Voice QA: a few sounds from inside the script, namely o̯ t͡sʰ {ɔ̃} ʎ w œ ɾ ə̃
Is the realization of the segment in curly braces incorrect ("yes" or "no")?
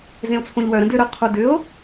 yes